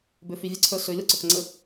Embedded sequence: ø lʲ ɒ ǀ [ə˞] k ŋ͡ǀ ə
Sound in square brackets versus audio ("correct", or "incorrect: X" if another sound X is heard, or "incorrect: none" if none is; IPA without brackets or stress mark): correct